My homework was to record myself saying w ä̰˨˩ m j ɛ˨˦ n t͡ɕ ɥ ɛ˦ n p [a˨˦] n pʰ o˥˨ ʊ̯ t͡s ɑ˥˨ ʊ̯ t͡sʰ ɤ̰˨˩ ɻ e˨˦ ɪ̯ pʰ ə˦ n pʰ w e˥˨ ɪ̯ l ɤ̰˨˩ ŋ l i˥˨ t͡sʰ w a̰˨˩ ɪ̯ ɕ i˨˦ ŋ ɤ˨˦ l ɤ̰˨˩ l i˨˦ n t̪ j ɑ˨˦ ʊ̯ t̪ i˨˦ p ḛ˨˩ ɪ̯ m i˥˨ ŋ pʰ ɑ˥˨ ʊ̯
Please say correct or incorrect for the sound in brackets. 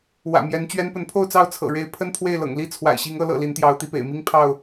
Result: incorrect